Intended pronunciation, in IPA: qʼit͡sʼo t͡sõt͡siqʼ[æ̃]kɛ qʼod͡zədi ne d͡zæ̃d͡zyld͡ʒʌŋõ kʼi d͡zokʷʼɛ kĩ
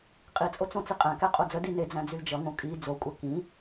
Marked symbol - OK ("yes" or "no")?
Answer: yes